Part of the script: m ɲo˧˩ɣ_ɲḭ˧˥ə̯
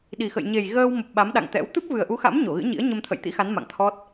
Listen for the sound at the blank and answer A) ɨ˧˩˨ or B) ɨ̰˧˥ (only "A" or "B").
B